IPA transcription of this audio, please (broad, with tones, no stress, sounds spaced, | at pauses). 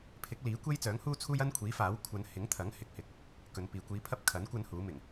pʰ ɪ˨˥ k̚ l iː˨˥ kʷ e˥ j t͡s œː˨˥ ŋ h uː˥ t͡sʰ uː˥ j ɐ˥ n kʷʰ iː˨˥ f aː˨˥ w kʷʰ ɐ˧ n h ɪ˨˥ ŋ t̪ʰ ɐ˨˥ ŋ h ɪ˧ k̚ h ɪ˧ k̚ | k ɵ˨˧ n p iː˨ kʷ iː˧ pʰ ɐ˥ p̚ kʰ ɐ˨˥ n kʷ ɐ˥ n h uː˨˥ m ɪ˨˩ ŋ